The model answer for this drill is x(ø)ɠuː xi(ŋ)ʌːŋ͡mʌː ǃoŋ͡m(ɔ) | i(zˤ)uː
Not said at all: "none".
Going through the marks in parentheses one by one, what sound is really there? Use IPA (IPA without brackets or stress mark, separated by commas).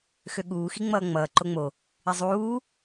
ø, ŋ͡m, o, zˤ